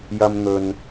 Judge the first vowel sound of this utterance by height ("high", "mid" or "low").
low